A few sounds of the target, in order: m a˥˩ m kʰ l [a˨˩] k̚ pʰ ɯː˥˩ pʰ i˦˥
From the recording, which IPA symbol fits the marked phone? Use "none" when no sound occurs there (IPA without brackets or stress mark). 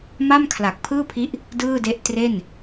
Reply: a˨˩